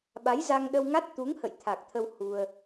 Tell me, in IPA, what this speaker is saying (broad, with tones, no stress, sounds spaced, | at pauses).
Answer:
ɓ a˨˦ j z a˧ ŋ ɗ ə˧ w ŋ a˦˥ t̚ t̪ u˨˦ ŋ h ə̰˧˨ j t̪ʰ a˨˩ k̚ t̪ʰ ə˧ w h u˧ ə̯